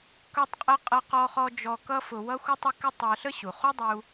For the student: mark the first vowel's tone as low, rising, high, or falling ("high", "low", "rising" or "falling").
high